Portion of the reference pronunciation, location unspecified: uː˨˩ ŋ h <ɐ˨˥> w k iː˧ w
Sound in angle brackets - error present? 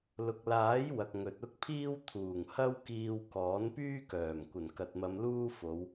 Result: yes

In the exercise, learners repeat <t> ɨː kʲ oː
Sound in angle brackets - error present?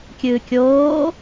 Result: yes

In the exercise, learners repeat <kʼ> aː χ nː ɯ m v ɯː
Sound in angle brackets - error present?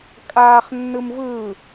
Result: no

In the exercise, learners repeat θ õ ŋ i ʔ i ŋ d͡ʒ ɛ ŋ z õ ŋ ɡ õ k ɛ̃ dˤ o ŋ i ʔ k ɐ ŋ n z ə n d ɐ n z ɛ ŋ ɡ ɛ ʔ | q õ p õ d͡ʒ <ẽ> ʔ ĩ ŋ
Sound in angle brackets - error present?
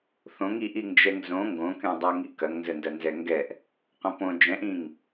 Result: yes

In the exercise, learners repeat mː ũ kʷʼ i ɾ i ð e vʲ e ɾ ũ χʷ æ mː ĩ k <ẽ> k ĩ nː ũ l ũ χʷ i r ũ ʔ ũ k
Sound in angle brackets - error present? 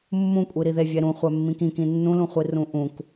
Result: yes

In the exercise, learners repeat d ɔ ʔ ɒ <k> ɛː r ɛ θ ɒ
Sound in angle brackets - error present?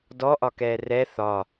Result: no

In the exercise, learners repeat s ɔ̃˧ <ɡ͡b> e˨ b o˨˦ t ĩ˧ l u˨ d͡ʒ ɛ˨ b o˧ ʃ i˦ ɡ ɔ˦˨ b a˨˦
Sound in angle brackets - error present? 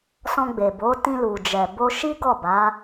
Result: no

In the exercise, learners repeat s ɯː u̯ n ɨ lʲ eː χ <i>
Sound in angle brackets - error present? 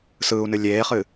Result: yes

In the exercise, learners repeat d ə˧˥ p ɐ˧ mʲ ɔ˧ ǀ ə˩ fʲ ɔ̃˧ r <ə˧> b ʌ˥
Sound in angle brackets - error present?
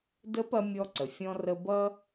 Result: no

